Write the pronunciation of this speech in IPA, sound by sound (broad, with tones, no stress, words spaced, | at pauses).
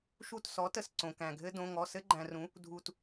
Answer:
ʃu˦˨tsɔ˩˥tə˨s ǀõ˨kæ̃˨ɡʱɘ˥ dõ˧˥˧ŋɔ˧˥˧ sɘ˥ɡ͡ǃæ̃˨rũ˩˥ | dʱu˨t